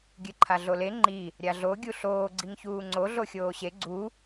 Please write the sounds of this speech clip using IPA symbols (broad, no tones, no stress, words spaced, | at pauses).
ɡʲɨǃʰaɮole ŋ͡ǃi | ɾʲaɮo ɡʲuɬoː ɡ͡ǀiŋçuːŋ͡ǀo ɮoxʲoːɕe ɡ͡ǀu